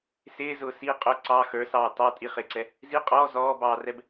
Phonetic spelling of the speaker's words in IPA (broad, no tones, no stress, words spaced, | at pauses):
sɪːzʊː si qʼʊ ǀɑ xə˞sɑː tɑ tʼiχɪːǀɛ | zi qʼɔː zɔːbɑːrɛb